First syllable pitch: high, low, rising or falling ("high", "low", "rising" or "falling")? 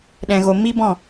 low